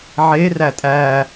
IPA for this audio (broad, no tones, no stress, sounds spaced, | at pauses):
ʕ e r æ tʼ æ